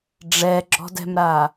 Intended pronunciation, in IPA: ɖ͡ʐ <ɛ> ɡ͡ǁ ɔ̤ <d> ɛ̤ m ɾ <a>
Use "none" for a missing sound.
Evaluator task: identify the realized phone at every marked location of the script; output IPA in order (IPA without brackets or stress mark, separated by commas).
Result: ɛ, d, a